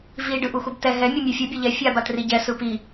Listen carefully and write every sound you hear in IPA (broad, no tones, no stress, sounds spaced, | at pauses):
v i ɖ ɯ ʔ u x u b t ɛ ɦ ɛ mʲ u mʲ ɯ fʲ u bʲ ɛ ʎ ɛ fʲ a b a t r i ɟ ɛ s ɯ p i